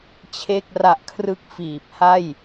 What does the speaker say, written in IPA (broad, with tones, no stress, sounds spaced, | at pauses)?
t͡ɕʰ e˥˩ k̚ r a˦˥ ʔ kʰ r ɯ˥˩ k̚ f iː˨˩ p̚ h a˥˩ j